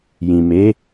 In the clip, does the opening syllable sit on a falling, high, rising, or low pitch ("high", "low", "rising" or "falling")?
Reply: low